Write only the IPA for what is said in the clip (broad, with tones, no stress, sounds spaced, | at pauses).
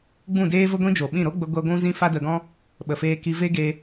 ɡ͡b ũ˦˨ d eː˦ v ə˦ ɡʷ ĩ˦ d͡ʒ o˨ ɓ ĩ˦˨ ɾ o˦ ɡ͡b ə˧ ɡʷ ɛ˧ ɡʷ ũ˦ z ĩ˦ f a˦ d ə˧ ɡ ɔ̃˦ | ɓ ə˨ f eː˧ k i˧ v e˦ ɡ e˧